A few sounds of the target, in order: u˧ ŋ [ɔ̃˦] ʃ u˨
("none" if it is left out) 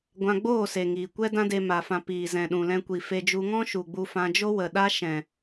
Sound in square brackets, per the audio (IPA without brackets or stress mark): ɔ̃˦